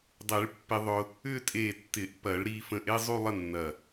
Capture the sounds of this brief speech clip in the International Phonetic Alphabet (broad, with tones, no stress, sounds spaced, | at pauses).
dˤ e˨˩˦ ɭ pː ɪ˧ ðˤ ʊ˧ | ʏ˥˧ tʼ e˧˩ tː ɪ˨˩˦ ʔ p ɐ˨˩˦ ɭ ɾ i˧ f ə̃˧ ʔ e˥˧ zˤ u˥˧ lˠ ə˥˧ nː ɐ˧˩